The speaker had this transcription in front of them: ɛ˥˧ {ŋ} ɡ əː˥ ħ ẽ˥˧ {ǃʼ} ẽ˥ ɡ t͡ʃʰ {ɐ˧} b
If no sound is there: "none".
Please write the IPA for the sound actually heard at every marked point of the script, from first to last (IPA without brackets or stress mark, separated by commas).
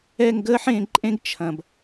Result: ŋ, ǃʼ, ɐ̃˧